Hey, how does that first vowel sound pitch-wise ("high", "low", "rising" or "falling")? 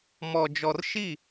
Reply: low